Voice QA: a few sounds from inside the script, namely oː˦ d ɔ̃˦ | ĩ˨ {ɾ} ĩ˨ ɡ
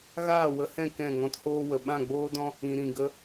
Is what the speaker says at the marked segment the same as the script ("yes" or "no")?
yes